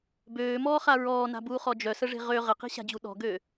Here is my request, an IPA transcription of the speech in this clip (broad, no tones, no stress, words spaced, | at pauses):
bøːmɔːχa ɹɔːna̤buːχɔ d͡ʒœsəʐe̤ ʁø ʁəqi̤ɕa̤d͡ʑu ɗɔ̤ɡø